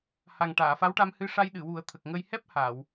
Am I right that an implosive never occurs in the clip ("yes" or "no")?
no